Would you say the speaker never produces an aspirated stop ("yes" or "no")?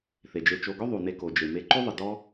yes